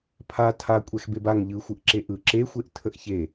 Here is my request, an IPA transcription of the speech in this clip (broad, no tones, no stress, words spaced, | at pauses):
pʰa tʰa kʷʼɛxbebaŋ ʎɯxʷɯʔ ǁeʔɯ ǁexʷeʔ tʰəʔçe